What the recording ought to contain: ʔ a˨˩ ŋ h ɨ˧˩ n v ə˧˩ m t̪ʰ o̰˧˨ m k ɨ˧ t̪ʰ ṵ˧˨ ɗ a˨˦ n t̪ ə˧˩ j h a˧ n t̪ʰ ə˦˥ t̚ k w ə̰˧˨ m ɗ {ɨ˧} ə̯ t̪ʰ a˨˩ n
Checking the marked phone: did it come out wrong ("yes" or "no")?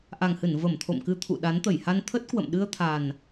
no